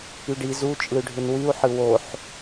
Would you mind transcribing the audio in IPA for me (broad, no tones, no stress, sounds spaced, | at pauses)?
y ɖ i z u t͡ʃʼ ɯ y̯ ɖʱ ɯ n w y u̯ ħ ɯ w o ħ